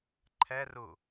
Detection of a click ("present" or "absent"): present